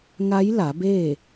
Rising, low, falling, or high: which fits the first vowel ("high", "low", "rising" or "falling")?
rising